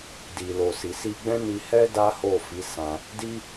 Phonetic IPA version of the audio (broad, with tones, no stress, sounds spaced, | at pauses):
d i˨ l o˨ s i˨ s i˧ ɡ͡b ɛ̃˦ n i˧ h ɛ˦ d a˦ h o˦˨ f i˨˦ s ã˧ | d i˦